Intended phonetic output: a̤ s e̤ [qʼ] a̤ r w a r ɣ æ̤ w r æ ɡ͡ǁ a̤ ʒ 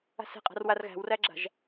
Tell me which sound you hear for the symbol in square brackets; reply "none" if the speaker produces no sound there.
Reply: qʼ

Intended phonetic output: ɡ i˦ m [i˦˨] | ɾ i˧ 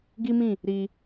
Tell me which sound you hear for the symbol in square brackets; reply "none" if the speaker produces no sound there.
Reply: ĩ˦˨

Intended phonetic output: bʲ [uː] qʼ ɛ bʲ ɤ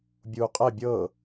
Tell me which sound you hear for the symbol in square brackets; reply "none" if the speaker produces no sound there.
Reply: uː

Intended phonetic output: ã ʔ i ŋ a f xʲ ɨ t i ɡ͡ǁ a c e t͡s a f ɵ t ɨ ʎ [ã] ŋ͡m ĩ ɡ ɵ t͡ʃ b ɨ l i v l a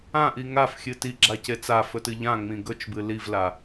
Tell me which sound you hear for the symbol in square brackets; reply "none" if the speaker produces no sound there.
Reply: ã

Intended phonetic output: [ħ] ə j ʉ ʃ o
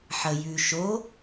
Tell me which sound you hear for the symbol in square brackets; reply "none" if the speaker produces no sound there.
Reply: ħ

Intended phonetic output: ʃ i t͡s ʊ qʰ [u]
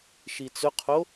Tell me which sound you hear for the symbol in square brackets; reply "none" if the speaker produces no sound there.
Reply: o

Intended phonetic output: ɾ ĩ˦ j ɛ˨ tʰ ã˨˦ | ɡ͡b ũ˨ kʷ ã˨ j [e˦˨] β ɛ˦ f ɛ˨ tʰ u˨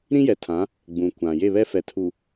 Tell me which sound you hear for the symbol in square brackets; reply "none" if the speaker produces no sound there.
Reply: e˦˨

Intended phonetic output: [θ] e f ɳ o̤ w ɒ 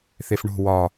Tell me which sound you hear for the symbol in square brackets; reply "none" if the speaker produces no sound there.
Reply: θ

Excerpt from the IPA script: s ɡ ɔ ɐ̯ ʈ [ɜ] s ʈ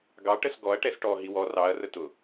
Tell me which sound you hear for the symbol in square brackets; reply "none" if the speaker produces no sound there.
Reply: ɛ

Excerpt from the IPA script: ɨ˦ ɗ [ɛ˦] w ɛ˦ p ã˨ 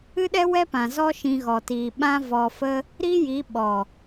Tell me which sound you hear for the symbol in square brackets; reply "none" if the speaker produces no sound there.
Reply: ɛ˦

